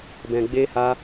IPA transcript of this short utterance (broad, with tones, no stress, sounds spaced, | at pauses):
b ɛ̃˧ ɡ͡b e˦ h a˦